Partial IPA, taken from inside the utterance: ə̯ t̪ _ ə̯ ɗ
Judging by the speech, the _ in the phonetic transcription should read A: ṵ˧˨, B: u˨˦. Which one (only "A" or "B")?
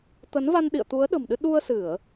B